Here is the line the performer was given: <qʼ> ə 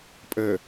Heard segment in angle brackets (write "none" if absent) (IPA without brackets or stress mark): pʼ